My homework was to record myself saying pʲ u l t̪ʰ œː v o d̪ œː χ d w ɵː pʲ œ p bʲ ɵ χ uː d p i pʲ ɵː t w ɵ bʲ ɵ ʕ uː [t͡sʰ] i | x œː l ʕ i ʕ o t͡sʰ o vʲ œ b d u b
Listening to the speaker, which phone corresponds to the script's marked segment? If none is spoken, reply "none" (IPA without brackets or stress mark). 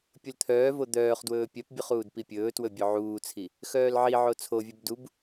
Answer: t͡sʰ